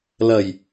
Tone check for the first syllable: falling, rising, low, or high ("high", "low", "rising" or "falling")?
low